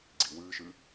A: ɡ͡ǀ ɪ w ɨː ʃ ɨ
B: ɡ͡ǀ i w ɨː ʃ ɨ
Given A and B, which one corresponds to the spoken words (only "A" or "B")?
B